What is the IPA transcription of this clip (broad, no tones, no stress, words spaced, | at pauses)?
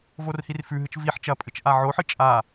vorhirfʉɦɨt͡ʃ viħ t͡ʃɐpʼɨt͡ʃ ʔaʕoħɨ t͡ʃʼa